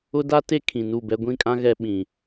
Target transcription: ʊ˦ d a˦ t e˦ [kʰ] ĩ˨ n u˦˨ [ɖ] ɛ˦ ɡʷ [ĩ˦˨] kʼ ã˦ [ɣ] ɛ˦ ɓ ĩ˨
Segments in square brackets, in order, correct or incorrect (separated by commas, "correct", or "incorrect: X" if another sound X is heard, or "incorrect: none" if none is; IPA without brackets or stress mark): correct, incorrect: b, correct, correct